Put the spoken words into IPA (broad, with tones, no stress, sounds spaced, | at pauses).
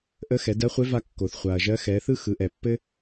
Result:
ʔ ə˧˥ x ɛ˩˧ d ɜ˧˥ χʷ e˧˥ v a˧ kː o˩ θ χʷ a˩ ɐ̯ ʒ ɜ˧˥ x ɛ˩˧ θ ɯ˥ x ɯ˩˧ ʔ ɛ˩ pː ɘ˥